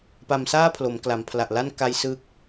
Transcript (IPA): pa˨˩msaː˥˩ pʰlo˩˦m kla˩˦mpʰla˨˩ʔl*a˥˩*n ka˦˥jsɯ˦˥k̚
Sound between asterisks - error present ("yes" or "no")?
no